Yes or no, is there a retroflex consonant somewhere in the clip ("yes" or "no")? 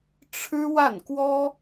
yes